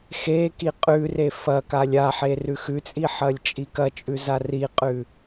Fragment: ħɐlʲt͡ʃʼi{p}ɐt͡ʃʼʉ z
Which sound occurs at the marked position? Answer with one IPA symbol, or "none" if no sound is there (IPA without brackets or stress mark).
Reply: k